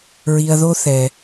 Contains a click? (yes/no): no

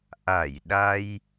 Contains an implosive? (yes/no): yes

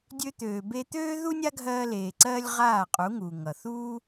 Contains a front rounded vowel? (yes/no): yes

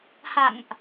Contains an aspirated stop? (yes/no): no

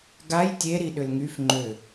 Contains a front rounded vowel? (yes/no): yes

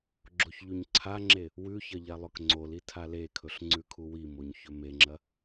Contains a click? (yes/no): yes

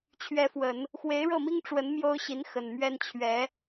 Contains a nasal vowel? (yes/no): no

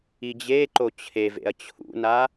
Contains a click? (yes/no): yes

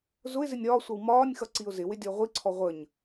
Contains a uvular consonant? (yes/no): yes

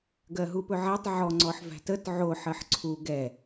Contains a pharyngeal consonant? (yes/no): yes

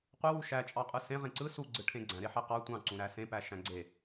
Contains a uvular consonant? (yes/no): yes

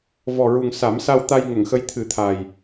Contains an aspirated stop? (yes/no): yes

